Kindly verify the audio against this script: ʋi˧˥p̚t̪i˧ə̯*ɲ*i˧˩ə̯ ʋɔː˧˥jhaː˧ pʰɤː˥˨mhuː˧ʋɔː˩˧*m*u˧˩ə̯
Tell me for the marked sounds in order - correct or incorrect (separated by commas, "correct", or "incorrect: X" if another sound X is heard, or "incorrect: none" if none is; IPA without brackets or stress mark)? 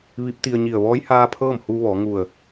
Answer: correct, incorrect: ŋ